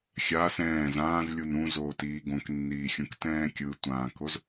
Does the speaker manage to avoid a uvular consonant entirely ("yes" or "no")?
yes